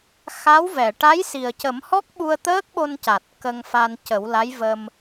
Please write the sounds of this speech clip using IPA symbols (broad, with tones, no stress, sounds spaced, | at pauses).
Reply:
x a˧˥ w v ɛ˨˩˨ ʈ a˧˥ j s i˨˩ ə̯ c ə˨˩˦ m h ɔ˦˥ k̚ ɓ u˧ ə̯ t̪ əː˦˥ k̚ ɓ o˧ n c a˨˩ t̚ k ə˧ ŋ f a˧ n c ə˨˩˦ w l a˧˥ j v ə˧ m